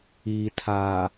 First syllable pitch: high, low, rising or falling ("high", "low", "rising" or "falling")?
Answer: low